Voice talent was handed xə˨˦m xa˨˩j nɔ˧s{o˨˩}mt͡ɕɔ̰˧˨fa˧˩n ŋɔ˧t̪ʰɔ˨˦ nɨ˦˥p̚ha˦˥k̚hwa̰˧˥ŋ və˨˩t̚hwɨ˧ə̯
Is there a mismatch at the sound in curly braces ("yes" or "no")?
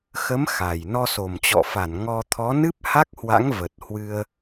no